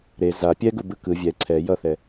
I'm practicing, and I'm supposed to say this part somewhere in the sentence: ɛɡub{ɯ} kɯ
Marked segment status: correct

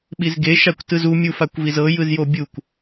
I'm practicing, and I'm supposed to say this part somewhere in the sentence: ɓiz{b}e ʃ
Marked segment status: incorrect: ɡ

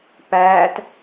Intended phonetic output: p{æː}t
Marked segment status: correct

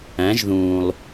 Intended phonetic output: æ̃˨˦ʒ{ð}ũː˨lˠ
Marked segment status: correct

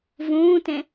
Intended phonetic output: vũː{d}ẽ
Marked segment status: incorrect: t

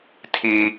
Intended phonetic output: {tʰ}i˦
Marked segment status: correct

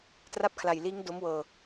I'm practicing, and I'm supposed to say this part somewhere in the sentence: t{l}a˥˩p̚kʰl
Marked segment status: incorrect: r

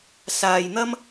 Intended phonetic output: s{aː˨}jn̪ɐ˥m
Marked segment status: correct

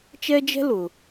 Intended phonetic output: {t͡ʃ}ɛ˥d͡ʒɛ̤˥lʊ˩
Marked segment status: correct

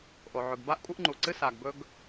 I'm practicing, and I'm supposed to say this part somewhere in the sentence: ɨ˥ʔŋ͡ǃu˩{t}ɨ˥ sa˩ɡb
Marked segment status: incorrect: ǀ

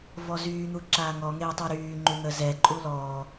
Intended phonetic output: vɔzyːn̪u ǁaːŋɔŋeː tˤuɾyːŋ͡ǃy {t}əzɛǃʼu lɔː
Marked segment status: incorrect: n̪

